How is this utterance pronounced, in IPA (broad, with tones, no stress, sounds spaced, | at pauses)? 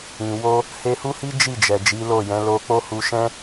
ĩ˨ w o˧ | h e˧ h u˦ h i˦ d͡ʒ i˦˨ d͡ʒ ɛ˨ d͡ʒ i˨˦ l o˦˨ j ɛ̃˨˦ l o˧ k͡p o˦ h u˧ ʃ ɛ̃˦